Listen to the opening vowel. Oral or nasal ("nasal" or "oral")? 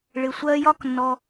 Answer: oral